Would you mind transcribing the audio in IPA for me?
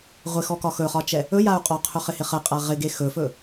ʁʷ ɪ x ɔ k ɒ x ɵ χ ɒ t͡ʃ ɛ | ɵ j a u̯ qʼ ɔ qʰ ɵ χ ɪ h ɪ χ ə qʼ a ʁ ɪ ɡ e x ɵ f ɵ

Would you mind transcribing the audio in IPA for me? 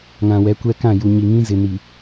ŋ ã˨ w ɛ˨˦ kʷ ɛ˦ k ã˦˨ j u˨ ɲ i˨ ŋ ĩ˦ z ɪ˨ n i˨

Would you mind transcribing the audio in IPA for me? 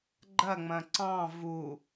ɡ͡ǃ ɐ ŋ͡m ɐ̃ ǀ ɑ̃ v u

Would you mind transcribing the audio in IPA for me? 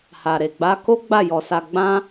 h a˨ ɾ e˨ ɡ͡b a˧ k o˦ ɡ͡b a˦˨ j ɔ˧ s a˧ ɡ͡b ã˦

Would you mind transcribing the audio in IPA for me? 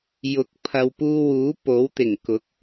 j ʊ˨˥ k̚ pʰ ɐ˨ w p uː˧ w uː˨˥ p o˨˥ w t̪ ɪ˨˩ ŋ k ʊ˨˥ k̚

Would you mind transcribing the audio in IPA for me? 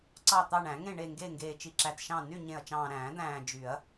ǀ ɑ˦˨ t̪ ɑ˦˨ ɳ æ̃˨˩˦ ŋ ẽ˦˨ ɳ e˦˨ ŋ ɡ e˦˨ ŋ ɡ eː˨ t͡ʃ i˨ ǁ æ˨ t ʃ ɑ̃˦˨ n y˦˨ ɲ ẽ˨ ɐ̯ t͡ʃ ɑ̃ː˨ ɾ æ̃ː˨˩˦ d̪ æ̃ː˨ d͡ʒ y˨˩˦ ɐ̯

